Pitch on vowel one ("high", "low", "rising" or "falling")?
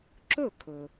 falling